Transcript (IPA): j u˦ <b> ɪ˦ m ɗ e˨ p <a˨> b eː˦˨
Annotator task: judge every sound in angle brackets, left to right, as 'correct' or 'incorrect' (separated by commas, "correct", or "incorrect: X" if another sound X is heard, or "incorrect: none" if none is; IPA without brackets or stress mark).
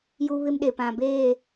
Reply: incorrect: β, incorrect: ã˨